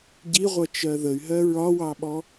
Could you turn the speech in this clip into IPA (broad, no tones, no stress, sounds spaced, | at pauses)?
ɟ i ʁʷ ʌ t͡ʃ ɜ ð ə y̯ ɦ ɜ ɹ ɒ w ɑ ɓ ɔ